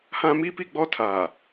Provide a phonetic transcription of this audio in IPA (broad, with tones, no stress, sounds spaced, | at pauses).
h ã˦ m i˦ p i˦˨ ɡ͡b ɔ˦ tʰ a˨